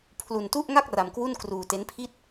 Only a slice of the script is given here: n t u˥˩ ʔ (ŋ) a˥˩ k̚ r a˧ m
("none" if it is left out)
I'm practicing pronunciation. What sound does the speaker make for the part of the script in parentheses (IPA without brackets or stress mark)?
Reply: ŋ